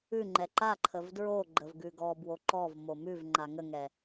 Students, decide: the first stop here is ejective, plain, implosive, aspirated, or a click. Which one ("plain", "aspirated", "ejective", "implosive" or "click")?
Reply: click